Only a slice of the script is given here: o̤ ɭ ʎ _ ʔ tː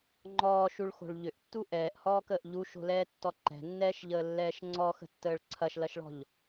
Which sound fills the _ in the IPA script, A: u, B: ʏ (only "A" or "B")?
B